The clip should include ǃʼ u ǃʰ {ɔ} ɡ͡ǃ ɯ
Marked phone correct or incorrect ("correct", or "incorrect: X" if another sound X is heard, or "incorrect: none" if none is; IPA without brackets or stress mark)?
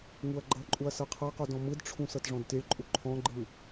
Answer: incorrect: ɔ̃